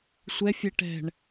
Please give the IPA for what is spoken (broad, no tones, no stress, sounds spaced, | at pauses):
sʷ ɛ fʲ ɛ ʈ ɛ̤ ɳ